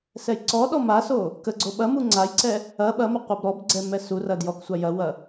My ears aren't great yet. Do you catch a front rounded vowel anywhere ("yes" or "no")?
yes